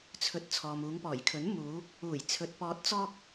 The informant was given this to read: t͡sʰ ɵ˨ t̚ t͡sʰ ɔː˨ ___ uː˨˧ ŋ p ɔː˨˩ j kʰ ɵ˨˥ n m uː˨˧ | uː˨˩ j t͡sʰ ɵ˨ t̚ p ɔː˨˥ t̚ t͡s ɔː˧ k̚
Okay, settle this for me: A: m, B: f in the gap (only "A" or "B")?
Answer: A